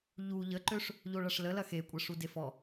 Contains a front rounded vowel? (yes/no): yes